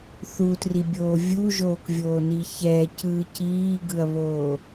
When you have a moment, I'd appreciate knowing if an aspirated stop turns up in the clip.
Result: no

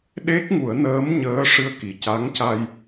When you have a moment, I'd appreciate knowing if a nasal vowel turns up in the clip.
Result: no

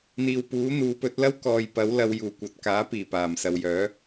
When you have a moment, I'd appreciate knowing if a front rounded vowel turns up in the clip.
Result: yes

